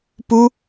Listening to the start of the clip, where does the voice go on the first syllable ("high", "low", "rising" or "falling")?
high